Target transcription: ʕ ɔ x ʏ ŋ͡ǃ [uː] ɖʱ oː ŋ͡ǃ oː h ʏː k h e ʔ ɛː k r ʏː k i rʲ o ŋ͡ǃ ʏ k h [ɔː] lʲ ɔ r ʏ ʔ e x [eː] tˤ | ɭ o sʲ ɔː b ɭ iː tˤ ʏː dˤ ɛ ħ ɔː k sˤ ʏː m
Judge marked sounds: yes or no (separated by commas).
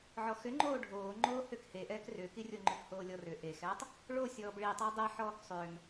no, no, no